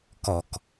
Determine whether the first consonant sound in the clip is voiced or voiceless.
voiceless